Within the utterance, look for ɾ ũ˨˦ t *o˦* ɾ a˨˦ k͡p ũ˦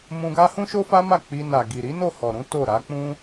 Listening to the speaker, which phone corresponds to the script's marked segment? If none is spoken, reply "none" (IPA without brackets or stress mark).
o˦˨